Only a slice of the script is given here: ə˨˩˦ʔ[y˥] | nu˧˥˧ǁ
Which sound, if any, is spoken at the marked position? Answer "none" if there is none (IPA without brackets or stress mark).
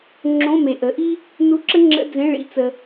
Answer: i˥